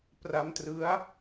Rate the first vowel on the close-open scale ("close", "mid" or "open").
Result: open